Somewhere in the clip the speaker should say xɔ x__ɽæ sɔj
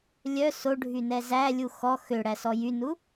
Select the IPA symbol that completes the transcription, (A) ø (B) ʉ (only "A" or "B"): A